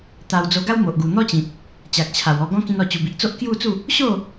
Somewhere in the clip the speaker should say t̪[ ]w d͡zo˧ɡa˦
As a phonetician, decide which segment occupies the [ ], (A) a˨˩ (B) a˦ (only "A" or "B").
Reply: A